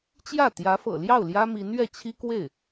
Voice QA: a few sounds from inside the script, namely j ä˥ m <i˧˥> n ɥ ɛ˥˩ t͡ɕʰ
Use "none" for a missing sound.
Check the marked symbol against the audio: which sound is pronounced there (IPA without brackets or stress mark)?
i˧˥